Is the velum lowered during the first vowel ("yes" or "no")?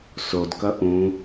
no